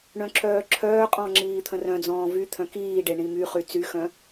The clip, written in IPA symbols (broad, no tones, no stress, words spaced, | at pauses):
ɳœ̃ǁʰœːǁʰœːqʼɔ̃ ŋ͡ǁiːt̪ʰə̃rœ̃d͡zɔ̃ː vy t̪ʰœ̃kiːɖe ɳĩmyχy t͡syxœ̃